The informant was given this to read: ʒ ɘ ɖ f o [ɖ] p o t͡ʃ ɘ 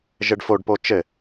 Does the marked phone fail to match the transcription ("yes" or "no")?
no